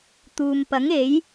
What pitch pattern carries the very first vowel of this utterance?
low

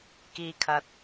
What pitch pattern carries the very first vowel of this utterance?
low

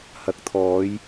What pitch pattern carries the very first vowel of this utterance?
rising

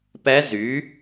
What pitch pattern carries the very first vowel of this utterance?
rising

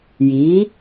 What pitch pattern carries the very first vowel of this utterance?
rising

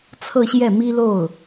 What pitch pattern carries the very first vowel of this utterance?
falling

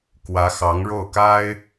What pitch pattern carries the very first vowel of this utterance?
rising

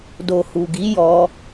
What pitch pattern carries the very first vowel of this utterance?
low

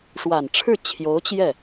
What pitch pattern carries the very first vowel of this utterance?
low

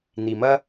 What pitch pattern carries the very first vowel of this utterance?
low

